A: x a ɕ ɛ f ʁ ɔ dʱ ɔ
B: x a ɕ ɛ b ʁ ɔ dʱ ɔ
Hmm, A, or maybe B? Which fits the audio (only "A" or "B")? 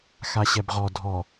B